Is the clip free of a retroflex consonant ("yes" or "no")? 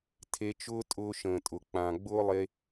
yes